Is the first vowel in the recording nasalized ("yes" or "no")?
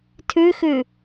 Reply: no